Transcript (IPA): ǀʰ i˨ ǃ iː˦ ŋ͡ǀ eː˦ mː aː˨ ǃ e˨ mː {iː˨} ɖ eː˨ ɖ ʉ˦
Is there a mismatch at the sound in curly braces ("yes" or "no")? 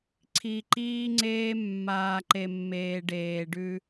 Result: yes